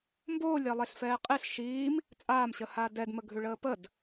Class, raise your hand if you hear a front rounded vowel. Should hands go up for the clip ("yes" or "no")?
no